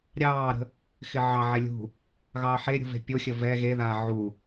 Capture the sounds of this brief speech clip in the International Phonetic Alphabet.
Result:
ɾʲ ɑː ɾ ə̤ | x ɪ ʕ ɑ ʕ ɛ lʲ ṳ | ɣ ɑː ħ e ɾʲ ṳ v e̤ pʲ o xʲ ə v ɛ ɣ e ð aː ʕ u

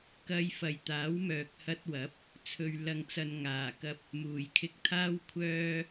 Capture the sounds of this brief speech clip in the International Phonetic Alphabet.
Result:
k ɐ˧ j f ɐ˨ j t̪ aː˨˥ w m œː˨ k̚ h ɐ˧ t̚ w ɐ˨˥ p̚ | t͡sʰ ɵ˨ ɥ l ɐ˨ ŋ t͡s ɐ˨ n ŋ aː˨˩ k ɐ˧ p̚ | m uː˨˩ j kʰ ɪ˧ k̚ t̪ʰ aː˥ w kʷʰ œː˥

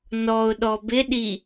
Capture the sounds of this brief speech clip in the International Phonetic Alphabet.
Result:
n ɔ ʊ̯ ɗ ɔ b ɪ ɗ i

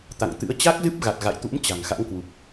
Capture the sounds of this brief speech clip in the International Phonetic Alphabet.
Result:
t̪ a̰˧˨ ŋ t̪ ɨ̰˧˥ ə̯ t͡ɕ a˦˥ k̚ z ɨ˦˥ p̚ ɣ a˨˩ t̚ ɣ a̰˧˨ j t̪ ṵ˧˥ m t͡ɕ a̤˨˩ ŋ x a̰˧˥ ŋ k w u˨˩ k̚

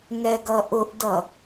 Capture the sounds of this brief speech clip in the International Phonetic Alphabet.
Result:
ŋ ɛ ɡ ʌ ʔ ʊ ʔ d ʌ

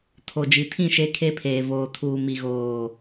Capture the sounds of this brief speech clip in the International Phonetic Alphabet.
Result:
tʰ o˨ d͡ʒ i˨ tʰ ĩ˦˨ ʃ e˦ kʰ e˦ pʰ eː˨ v oː˨ tʰ uː˨ m i˨ ɣ oː˨

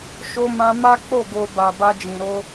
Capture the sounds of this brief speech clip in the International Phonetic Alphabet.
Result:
ʃ o˧ m ã˧ m a˦ k͡p o˦˨ ɡ o˨ b a˨ b a˧ d͡ʒ ĩ˨ ɾ o˧

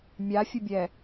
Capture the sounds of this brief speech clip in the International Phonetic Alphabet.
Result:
mʲ a fʲ ə bʲ ɛ

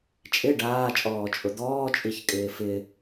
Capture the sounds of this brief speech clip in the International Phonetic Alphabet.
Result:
t͡ʃʼ ɪ ɖ aː t͡ʃʼ ɔː t͡ʃʼ ʊ d̪ ɔː t͡ʃʼ i ç kʼ ɪː f ɪ

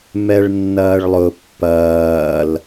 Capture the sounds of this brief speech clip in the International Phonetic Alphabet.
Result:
m ɛ ɭ nː ɐː ɭ lˠ ʊ pː ɐː l

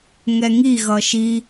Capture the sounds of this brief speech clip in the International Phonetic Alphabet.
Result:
ŋ ɛ ŋ i ɣ ʌ ʃ i

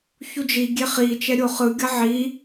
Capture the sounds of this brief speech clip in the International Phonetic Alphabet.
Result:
ç u d͡ʒ i ɡʲ e χ i t͡ʃ ɛ ɾʲ o χ ɯ ɡʲ ʌ ʕ i

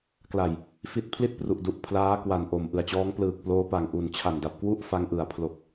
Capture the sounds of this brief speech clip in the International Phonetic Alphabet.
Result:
k l a˨˩ j | f i˦˥ t̚ pʰ l i˥˩ t̚ p r u˨˩ ʔ d u˨˩ ʔ pʰ l aː˦˥ k w a˨˩ n ʔ o˨˩ m ʔ ɯ˨˩ a̯ t͡ɕ ɔː˦˥ ŋ p l ɯː˨˩ k̚ p l oː˦˥ p a˨˩ ŋ ʔ u˨˩ n t͡ɕʰ a˨˩ n d a˨˩ p̚ k w u˥˩ ʔ f a˧ ŋ ʔ ɯ˨˩ a̯ pʰ l o˨˩ k̚

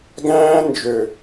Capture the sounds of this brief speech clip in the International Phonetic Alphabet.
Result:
ɡ æ̃ː˦ n d͡ʒ ø˨

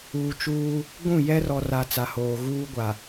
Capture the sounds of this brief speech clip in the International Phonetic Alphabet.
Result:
uː˨ t͡ʃ uː˦ | ɡʷ ũ˦˨ j ɛ˦ r ɔ˨ r a˨ t͡s a˨ h oː˨ ɣ uː˦ ɡʷ a˨

